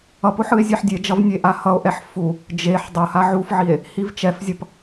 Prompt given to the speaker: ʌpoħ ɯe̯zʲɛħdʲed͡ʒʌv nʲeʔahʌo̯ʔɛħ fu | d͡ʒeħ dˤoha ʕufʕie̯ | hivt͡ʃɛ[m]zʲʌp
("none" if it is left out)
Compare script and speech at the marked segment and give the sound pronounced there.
f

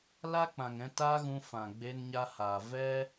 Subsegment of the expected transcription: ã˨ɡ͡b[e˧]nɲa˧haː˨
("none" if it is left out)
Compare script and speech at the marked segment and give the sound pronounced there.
e˧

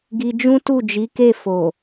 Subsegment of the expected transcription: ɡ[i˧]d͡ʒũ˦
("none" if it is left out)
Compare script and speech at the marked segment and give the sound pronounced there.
i˧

